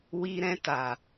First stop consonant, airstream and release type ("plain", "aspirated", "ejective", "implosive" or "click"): plain